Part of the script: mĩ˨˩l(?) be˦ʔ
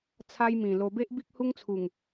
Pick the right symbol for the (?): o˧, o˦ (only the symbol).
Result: o˧